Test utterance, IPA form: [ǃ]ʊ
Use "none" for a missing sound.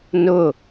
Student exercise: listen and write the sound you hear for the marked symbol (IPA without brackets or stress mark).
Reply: n